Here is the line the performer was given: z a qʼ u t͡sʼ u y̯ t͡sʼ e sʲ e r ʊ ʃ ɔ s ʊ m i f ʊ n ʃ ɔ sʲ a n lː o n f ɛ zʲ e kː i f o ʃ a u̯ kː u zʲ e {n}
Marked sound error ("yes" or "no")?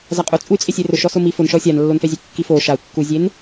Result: no